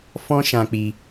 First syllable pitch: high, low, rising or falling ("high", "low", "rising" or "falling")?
high